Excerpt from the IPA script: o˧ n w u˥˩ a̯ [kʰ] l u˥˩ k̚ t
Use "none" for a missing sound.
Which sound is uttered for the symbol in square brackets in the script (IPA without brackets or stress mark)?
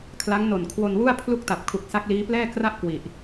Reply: pʰ